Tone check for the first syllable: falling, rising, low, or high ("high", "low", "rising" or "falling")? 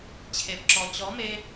low